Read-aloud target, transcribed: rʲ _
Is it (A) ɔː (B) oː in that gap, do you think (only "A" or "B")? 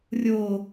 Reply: B